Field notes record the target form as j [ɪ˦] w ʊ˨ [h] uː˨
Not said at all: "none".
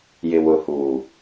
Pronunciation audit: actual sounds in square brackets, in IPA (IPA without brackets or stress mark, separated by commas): ɪ˨, h